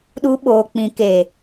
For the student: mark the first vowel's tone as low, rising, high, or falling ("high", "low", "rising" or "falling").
high